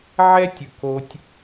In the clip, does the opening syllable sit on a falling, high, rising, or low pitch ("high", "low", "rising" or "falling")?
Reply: high